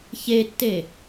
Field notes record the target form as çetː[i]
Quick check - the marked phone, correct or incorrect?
incorrect